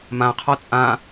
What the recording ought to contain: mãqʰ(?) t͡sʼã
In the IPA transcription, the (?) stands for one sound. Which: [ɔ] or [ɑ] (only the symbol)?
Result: ɔ